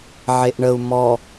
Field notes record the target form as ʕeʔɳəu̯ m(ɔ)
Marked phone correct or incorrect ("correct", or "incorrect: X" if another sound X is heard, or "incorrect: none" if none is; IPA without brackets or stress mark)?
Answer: correct